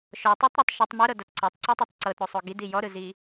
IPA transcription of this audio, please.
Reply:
ʃ ɔ tˤ o tˤ ɾ ɔ tˤ ʃ ɯ tˤ m o ɾ ɤ d a t ǀ ɤ tˤ ǀ ɤ tˤ o tˤ ǀ ɤ t ɾ o sˤ o ɡ i d i j ɔ ɾ ɯ z i

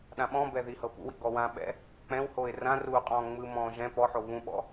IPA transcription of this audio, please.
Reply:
ɗ ã ɓ ɔ̃ b ɛ ð i h ɤ p ṵ w ḭ ɡ ɔ w ã ɓ ɛ̰ | k͡p ɛ̃ w h o ɪ̯ r ã r uː qʼ ɔ̃ː ŋ͡m ɯ m ɔ̃ː ʒ ɛ̃ p ɔ ħ o β ũ ɓ ɔ̰

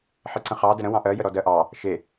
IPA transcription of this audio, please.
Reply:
ħ e ǀ ə̃ χ ɑ d ə ɾ ə̃ w ɑ̃ ʔ ɜ j ə ɾ ɔ d ɜ ʔ ɑ | ʃ e

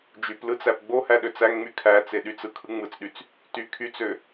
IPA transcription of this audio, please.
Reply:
d͡ʒ y p l ɯ t͡s æ p ɡ͡b o h æ ɗ ø t͡s æ ŋ ŋ͡m y kʰ æ t͡s e ɗ y t͡s ɯ kʰ ɯ ŋ͡m ɯ t͡s ɗ y t͡s | t y kʰ y t͡s ø

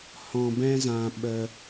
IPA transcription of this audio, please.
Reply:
h ɔ̃˧ b ɛ̃˦ z ã˧ ɓ ə˧

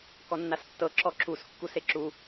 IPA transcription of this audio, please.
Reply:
k ɔ nː a s tː ɤ ǁ ɔ ǁ u s kː u s e ǁ u

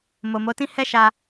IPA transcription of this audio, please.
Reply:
m o˨ m o˨˦ t ĩ˦ h ɛ˦ ʃ a˧

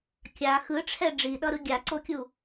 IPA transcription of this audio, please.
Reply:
kʲ a x ɯ ʈ͡ʂʰ ɛ ɖ͡ʐ i ɗ ʌ ɾ ɯ ɡʲ a ǀ o kʲ u

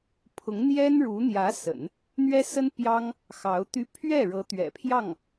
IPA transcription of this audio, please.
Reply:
pʰ ʊ˧˥ ŋ n̪ j ɛ˥ n ɻ u˧˥ n̪ j ä˧˥ s ə̰˨˩˦ n | n̪ ɥ ɛ˥ s ə˥ n p j ɑ˥ ŋ | x ɑ˧˥ ʊ̯ t̪ y˥ pʰ ɥ ɛ˥˩ ɻ ɤ˧˥ t̪ ɥ ɛ̰˨˩ pʰ j ɑ˥˩ ŋ

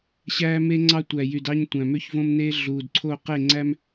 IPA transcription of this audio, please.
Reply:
ɕ æː˦ m e˦ ŋ͡ǀ ɑ˦ tʷ æ˨ j y˨ d ɑ˦ ɲ tʷ æ̃˨ m ø˦ ç v õ˦ m n eː˦ ɮ uː˨ d ǀʰ o˦˨ q e˦˨ ŋ͡ǀ æ˦ m

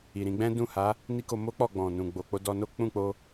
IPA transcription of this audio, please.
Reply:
i˨ ɾ ĩ˧ ɡ͡b ɛ̃˦ d ũ˦˨ h a˨˦ | n i˦ k o˧ m o˦ k͡p ɔ˦˨ ɡ͡b ɔ̃˨ n ũ˨ ɡ͡b o˨ k͡p o˧ d ɔ˧ n o˦ k͡p ũ˦˨ k͡p o˧

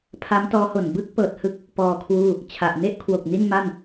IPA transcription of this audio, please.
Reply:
pʰ a˦˥ m t ɔː˦˥ h o˨˩ n b ɯ˥˩ k̚ p ɤː˨˩ t̚ h ɯ˦˥ k̚ | p ɔː˧ kʰ w uː˥˩ | t͡ɕʰ a˨˩ ʔ n e˥˩ ʔ kʰ w o˨˩ k̚ n i˥˩ n m a˥˩ n

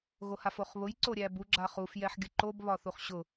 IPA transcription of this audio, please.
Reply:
ɣ o h a f o χ β ʊ j ǀ o ɾʲ æ b u ɡ͡ǁ a χ u f j ɛ ħ ɡʲ ʊ ǃ o b β ɒ θ u χ ɕ ʊ

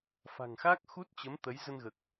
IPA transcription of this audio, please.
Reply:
f a̤˨˩ ŋ x a˦˥ k̚ x u˦˥ t̚ t͡ɕ ə˨˦ m t̪ ə˨˦ j z ə˧ n ɣ əː˨˩ k̚

